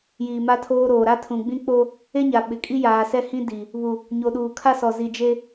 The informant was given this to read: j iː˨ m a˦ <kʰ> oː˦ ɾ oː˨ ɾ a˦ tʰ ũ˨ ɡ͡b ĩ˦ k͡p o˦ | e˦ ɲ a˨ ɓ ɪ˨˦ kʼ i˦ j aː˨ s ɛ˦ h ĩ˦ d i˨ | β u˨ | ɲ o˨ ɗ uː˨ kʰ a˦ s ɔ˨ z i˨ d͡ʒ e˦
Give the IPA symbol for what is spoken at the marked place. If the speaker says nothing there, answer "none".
tʰ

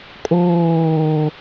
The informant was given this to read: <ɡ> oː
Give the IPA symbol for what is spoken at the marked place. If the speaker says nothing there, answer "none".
kʼ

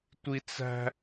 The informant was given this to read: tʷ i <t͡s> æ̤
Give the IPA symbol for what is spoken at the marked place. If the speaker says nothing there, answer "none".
t͡s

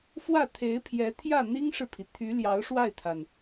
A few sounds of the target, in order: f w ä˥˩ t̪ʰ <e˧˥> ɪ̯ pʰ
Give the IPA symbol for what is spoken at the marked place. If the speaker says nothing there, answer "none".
e˧˥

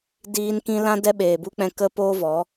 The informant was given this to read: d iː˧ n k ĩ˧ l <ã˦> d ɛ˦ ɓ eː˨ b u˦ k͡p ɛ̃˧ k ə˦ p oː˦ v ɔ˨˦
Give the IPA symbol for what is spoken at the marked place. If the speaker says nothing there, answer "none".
ã˦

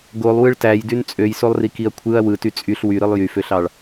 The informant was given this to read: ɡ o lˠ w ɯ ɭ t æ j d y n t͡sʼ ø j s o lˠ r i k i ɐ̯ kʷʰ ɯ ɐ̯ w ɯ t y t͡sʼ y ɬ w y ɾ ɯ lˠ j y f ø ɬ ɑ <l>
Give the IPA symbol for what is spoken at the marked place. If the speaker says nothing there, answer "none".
ɭ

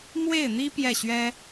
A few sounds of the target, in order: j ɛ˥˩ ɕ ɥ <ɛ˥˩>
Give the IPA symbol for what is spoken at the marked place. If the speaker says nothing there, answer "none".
ɛ˥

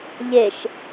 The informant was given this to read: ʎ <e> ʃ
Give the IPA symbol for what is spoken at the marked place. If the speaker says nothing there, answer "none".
e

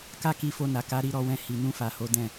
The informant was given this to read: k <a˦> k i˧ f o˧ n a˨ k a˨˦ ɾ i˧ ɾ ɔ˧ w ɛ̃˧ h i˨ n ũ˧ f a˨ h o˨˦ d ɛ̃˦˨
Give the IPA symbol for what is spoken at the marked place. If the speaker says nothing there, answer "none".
a˦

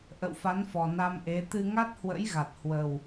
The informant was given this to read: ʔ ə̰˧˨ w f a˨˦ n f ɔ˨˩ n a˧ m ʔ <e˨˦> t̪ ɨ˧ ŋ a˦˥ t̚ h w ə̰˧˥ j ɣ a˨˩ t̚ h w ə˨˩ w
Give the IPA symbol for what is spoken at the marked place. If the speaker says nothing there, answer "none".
e˨˦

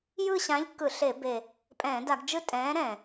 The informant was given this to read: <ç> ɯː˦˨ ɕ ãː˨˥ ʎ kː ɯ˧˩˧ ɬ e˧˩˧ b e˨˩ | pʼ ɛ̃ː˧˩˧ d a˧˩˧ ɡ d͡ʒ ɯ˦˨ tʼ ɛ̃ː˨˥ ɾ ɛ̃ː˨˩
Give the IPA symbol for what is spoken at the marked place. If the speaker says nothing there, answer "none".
j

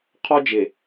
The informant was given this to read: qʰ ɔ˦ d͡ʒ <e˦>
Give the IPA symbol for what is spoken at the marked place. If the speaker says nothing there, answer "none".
e˨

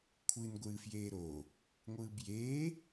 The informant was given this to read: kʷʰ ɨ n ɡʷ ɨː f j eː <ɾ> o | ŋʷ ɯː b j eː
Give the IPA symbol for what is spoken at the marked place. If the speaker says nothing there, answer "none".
ɾ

